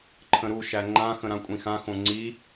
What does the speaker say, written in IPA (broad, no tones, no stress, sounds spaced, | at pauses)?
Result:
ǃʰ ə̃ ɾ u ʃ æ ŋ͡ǃ ã x ə̃ ɾ ã kʷʼ ĩ x ã x õ ŋ͡ǀ i